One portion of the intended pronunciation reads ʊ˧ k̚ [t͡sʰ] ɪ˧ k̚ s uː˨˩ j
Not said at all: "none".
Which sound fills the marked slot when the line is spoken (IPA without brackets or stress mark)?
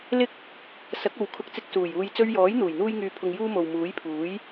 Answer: t͡s